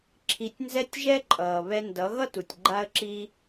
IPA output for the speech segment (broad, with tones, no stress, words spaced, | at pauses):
ǁʰi˧tʲnzɛ˦tʲʒɛ˦ ǃʼʌː˨ βɛ˧ndʌ˨˦ ɣʌ˦tu˨tʲ ɡ͡ǃa˦ə̯ǁiː˦